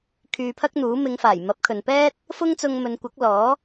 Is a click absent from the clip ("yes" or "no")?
yes